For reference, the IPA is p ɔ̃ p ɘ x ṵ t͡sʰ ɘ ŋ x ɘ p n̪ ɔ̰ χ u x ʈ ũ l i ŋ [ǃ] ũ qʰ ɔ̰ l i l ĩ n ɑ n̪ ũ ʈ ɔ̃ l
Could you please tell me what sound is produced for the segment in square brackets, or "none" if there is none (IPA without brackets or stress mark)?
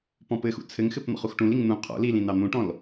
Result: n̪